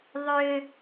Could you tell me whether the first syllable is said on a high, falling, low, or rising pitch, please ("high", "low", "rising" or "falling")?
low